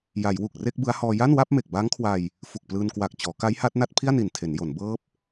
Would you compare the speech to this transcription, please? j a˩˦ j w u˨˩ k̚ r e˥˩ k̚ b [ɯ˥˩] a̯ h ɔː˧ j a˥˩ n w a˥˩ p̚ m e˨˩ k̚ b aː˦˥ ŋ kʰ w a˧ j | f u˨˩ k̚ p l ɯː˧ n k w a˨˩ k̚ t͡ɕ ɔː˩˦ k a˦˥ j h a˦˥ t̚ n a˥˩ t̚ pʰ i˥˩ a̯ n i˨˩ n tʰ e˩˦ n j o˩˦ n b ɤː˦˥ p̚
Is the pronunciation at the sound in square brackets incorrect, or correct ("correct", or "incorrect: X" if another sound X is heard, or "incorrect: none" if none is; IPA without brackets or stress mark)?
incorrect: ɯ˦˥